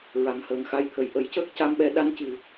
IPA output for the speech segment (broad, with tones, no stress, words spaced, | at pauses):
ɹa˨˩ŋhəː˨˩ŋxa˧jt̪ʰə˨˩j ʔə˨˩˦jcəː˦˥k̚ ca˧mɓɛ˧ ɗa˧ncɨ˨˩